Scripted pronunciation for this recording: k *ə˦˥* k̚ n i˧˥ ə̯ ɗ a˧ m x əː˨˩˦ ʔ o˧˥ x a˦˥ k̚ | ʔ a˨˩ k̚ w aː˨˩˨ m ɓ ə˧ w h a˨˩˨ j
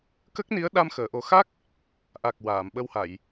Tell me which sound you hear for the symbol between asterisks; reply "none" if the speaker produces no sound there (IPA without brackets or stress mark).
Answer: ə˦˥